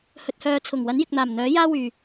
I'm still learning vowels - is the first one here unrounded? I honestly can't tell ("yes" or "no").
no